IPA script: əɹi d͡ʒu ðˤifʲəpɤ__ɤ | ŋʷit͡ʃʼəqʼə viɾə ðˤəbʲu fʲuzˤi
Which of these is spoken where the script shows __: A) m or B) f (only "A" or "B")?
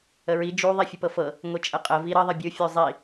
B